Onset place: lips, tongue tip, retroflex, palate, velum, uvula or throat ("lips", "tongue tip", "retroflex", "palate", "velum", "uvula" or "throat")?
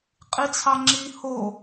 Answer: uvula